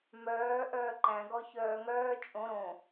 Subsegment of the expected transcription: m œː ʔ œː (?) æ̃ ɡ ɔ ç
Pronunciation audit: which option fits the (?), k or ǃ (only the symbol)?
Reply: ǃ